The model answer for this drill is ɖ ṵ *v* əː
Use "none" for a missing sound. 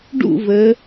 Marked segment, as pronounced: v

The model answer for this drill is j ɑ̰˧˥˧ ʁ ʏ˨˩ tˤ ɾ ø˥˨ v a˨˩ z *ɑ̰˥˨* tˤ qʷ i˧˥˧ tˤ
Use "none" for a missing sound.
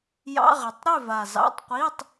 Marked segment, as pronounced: ɑ̰˧˥˧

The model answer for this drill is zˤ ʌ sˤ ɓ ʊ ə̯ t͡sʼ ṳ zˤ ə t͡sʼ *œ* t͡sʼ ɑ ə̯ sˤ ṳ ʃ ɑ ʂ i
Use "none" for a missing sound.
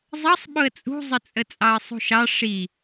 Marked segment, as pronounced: ə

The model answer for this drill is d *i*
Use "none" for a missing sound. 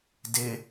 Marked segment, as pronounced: ɪ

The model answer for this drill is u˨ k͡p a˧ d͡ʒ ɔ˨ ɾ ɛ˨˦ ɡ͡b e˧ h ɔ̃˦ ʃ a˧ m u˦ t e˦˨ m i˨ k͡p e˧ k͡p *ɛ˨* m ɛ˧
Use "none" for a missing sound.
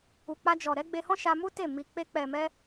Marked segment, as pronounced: ɛ˨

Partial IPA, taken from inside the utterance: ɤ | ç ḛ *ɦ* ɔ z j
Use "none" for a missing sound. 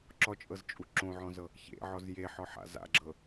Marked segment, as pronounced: ʕ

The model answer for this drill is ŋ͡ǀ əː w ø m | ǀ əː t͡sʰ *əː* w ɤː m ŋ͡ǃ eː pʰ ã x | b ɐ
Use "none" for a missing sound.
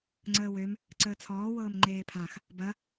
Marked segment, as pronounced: ɔː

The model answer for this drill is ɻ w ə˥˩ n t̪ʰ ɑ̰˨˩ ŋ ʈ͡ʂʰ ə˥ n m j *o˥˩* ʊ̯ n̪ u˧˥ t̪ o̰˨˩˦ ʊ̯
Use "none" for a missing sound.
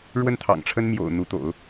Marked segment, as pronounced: o̰˨˩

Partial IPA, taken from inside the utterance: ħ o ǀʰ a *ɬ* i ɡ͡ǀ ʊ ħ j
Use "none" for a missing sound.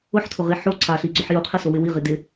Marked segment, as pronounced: ɬ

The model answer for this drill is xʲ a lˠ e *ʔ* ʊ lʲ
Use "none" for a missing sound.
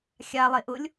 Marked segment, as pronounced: ʔ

